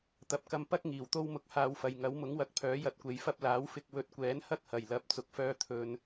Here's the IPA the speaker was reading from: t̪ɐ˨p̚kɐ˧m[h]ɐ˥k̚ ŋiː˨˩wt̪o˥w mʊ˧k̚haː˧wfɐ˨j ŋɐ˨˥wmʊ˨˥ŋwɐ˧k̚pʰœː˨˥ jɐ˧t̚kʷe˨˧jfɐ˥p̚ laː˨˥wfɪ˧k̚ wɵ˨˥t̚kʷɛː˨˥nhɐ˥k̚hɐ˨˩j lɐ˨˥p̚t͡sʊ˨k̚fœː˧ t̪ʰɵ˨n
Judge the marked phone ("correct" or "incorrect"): incorrect